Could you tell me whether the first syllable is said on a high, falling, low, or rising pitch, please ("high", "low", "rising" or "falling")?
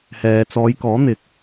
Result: low